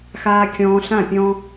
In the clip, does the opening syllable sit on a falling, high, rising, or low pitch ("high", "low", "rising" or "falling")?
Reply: high